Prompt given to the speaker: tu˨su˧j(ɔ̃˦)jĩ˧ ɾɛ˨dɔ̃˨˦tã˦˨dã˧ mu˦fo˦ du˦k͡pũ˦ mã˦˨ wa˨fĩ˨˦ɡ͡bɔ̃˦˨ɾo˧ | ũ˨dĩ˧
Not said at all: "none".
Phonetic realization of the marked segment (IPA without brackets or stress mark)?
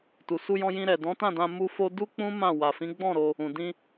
ɔ̃˧